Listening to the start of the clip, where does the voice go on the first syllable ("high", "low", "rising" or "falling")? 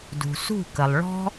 low